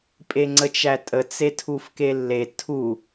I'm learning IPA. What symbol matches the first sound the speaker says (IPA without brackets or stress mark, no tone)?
pʼ